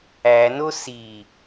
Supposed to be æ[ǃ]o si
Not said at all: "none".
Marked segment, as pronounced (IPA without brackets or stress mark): n